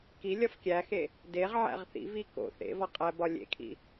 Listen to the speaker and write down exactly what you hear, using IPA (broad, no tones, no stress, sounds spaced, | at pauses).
k i lʲ ɒ f kʲ æ x e | d e ʁ ʕ æ̰ ʁ θ ḭ v i k o̰ θ ḛ v ɒ qʼ æ b ɒ lʲ ḛ kʰ ḭ